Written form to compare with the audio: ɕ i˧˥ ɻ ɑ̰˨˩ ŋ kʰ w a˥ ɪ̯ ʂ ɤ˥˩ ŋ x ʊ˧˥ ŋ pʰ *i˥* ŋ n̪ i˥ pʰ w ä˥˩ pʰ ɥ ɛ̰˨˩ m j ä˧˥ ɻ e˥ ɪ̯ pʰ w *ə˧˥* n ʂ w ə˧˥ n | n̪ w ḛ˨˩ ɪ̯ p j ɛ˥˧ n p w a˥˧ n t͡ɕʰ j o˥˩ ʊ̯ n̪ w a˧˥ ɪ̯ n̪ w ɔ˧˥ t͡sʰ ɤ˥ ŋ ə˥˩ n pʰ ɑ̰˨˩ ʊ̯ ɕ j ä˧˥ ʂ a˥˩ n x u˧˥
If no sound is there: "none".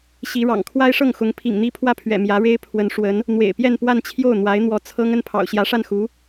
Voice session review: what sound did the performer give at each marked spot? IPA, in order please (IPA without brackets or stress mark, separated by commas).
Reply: ḭ˨˩, ə˧˥